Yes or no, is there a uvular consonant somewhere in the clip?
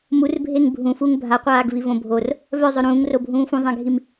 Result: yes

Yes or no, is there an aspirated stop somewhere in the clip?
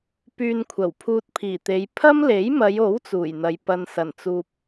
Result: yes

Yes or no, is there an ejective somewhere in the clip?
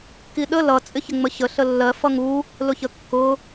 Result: yes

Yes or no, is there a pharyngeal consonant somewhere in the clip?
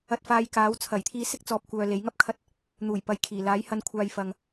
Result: no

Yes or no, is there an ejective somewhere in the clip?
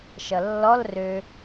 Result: no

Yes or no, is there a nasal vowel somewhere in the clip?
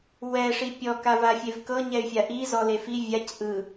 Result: no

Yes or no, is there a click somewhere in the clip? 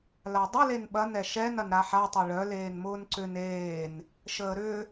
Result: yes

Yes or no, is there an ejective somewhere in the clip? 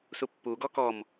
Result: no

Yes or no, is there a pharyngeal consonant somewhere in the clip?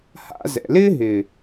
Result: no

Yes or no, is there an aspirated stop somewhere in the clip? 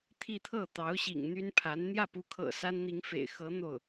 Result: yes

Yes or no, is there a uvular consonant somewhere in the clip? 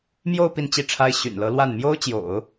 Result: no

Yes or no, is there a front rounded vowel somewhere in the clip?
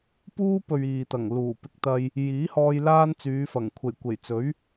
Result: yes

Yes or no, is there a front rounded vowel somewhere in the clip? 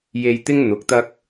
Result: no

